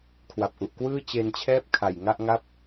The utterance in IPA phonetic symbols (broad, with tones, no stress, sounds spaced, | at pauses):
kʰ w a˨˩ p̚ ʔ u˨˩ ʔ k w ɯː˥˩ t͡ɕ e˧ n t͡ɕʰ ɛː˥˩ p̚ kʰ a˨˩ j ŋ a˥˩ ʔ ŋ a˥˩ p̚